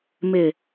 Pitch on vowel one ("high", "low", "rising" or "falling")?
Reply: low